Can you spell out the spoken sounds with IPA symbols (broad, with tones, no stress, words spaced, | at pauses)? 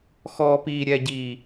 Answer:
xɔː˨piː˨ ɾʲɛ˨ɟiː˨